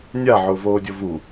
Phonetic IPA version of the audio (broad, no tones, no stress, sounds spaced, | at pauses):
nʲ a ʕ ʊː v oː dʲ o v u